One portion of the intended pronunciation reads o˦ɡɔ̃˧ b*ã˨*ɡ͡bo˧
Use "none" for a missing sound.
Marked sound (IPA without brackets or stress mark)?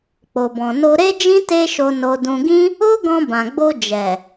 ã˨